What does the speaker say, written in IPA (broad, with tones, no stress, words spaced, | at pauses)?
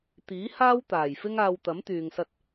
t̪iː˨˥haː˥wt̪aː˨˩j fɪ˥ŋaː˧w t̪ɐ˨˥mt̪yː˨ŋsɐ˧t̚